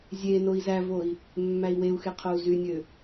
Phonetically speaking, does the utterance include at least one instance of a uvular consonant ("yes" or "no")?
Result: yes